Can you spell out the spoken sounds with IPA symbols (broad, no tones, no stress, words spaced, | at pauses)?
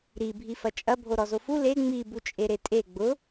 ɾi bʱifɐt͡ʃʼɐ bʱoɾɔzofu le ŋ͡mi but͡ʃʼeɾetʼe ɡ͡bʊ